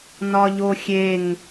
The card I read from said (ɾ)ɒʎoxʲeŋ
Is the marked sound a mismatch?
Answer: yes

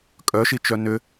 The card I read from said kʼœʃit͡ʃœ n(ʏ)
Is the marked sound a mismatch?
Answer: no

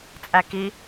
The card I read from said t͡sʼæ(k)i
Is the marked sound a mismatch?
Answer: no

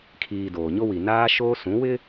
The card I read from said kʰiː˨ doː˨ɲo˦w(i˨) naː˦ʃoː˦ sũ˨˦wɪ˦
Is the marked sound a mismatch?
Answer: no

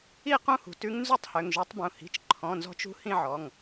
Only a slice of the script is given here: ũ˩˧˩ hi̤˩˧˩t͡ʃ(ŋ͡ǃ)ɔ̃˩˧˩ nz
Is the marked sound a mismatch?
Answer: yes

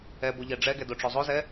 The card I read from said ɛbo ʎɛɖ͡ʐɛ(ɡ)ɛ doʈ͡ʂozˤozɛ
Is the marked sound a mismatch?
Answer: no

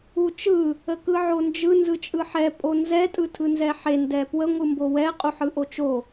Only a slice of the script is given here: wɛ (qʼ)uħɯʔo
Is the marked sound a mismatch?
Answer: no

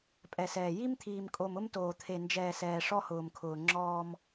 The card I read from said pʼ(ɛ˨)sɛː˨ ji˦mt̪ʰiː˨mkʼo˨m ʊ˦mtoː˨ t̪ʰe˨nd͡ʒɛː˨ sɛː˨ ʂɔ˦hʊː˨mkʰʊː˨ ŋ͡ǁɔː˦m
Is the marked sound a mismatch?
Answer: no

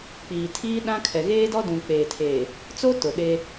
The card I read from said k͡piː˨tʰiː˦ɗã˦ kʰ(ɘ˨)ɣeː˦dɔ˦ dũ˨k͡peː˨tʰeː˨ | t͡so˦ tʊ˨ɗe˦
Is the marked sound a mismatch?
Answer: yes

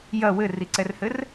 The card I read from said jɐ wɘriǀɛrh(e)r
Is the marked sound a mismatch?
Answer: yes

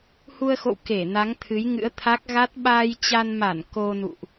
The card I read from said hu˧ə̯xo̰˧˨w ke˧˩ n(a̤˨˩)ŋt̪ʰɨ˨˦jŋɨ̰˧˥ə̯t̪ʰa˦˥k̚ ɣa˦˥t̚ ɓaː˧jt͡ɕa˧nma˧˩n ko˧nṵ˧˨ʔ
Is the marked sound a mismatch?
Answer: yes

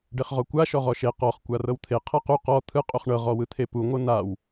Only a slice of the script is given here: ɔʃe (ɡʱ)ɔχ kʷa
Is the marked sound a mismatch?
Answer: yes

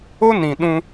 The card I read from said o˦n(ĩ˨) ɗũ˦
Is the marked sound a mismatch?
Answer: no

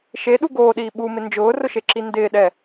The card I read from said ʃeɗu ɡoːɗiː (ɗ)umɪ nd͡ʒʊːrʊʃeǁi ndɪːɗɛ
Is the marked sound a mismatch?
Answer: yes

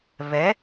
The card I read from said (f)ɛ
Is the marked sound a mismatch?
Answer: yes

